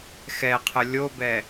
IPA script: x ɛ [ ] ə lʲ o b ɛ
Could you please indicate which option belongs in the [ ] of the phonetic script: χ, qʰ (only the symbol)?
qʰ